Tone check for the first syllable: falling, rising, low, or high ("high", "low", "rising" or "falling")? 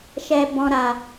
low